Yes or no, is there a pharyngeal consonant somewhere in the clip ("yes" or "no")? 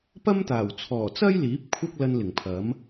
no